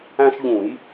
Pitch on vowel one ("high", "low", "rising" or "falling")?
high